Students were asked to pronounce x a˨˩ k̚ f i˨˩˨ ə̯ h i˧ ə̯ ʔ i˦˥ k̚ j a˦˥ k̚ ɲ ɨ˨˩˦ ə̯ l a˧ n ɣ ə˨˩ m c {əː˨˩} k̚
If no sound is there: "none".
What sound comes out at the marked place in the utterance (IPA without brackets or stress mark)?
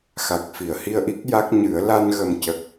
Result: ə˨˩